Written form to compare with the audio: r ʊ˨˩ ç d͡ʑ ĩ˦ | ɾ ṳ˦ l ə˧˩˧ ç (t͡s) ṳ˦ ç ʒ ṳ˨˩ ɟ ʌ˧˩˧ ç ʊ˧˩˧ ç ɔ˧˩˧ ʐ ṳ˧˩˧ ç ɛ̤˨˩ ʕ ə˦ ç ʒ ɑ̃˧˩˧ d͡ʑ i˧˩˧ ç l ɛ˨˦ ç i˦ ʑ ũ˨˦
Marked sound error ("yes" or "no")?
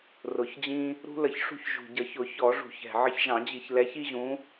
yes